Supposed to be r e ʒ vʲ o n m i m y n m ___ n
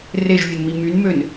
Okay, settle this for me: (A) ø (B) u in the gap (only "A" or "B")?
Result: A